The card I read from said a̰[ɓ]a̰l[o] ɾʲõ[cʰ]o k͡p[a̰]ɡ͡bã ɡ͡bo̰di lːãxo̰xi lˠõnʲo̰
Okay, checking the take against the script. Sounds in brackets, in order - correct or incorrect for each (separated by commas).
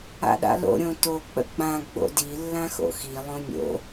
incorrect, incorrect, incorrect, incorrect